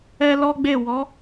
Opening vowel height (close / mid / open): mid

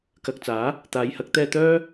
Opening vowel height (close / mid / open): open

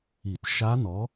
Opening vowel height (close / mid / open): close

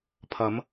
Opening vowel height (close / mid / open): open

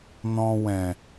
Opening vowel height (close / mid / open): mid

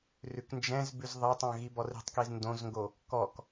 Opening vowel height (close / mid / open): close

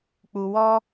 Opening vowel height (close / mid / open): close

